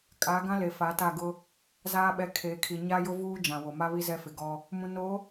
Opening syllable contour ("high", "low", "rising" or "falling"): rising